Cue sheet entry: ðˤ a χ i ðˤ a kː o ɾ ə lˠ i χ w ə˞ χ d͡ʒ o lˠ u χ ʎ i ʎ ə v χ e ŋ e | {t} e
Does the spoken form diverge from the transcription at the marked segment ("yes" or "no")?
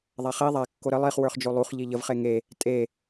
yes